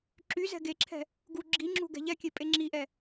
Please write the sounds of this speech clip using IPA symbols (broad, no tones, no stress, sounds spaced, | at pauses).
ǁ y z ɛ̤ ɡ e ǁʰ ɛ̤ | ɡ u ɡ͡ǁ i ŋ͡ǁ ṳ ɡ ɛ̤ ʎ ɛ kʲ e pʼ e ŋ͡ǁ i ʔ ɛ